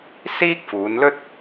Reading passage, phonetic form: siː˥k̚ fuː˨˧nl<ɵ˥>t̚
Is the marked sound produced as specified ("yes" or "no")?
yes